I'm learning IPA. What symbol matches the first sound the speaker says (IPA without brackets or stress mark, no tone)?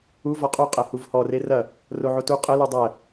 u